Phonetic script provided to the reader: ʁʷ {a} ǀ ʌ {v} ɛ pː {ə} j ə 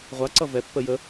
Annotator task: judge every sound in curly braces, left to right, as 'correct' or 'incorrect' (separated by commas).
correct, correct, correct